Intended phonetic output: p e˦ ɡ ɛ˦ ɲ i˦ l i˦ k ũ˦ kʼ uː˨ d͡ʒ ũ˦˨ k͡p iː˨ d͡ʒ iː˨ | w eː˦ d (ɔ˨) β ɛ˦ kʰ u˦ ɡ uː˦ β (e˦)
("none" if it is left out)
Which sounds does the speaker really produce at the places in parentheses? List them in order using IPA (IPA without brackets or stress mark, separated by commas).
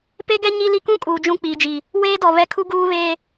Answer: ɔ˨, eː˦